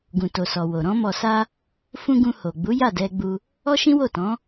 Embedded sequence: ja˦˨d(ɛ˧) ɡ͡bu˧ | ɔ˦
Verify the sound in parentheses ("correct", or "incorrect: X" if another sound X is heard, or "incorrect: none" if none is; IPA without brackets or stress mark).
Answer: correct